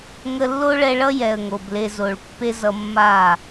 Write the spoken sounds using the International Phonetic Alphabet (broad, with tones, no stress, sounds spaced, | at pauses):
ŋ ə˧ lː o˦ ɭ ɛ˧ ɭ ʌ˦ j ɛ˨ ə̯ ŋ o˨ b l e˧ z o˨ ɭ pː e˦ z ʌ˧ mː a˦˨